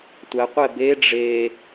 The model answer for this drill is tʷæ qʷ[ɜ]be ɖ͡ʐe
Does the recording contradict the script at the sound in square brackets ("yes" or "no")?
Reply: yes